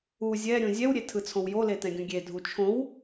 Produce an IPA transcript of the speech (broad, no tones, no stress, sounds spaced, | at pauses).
u zʲ ɛ ɾʲ ũ zʲ ɛ w ɾʲ e tʰ ɯ t͡sʰ õ w j o l e t ɛ̃ ɡʲ ũ ɡʲ e dʱ u t͡ʃʰ õ w